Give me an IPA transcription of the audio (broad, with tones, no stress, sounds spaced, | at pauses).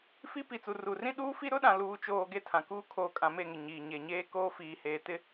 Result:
f i˦ p i˨ t͡s u˨ r u˨ r ĩ˦ ɗ uː˦ f i˦ ɾ ʊ˦ ɗ ã˨ l uː˨ t͡ʃ oː˨ ɡ e˦ tʰ ã˨ k uː˦ kʰ oː˨ kʼ ã˨ m e˦˨ ŋ ɪ˨ ɲ iː˨ ɲ e˨ ɲ eː˦ k oː˦ f iː˨ h eː˨ t ɪ˦